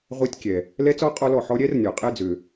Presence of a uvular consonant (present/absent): present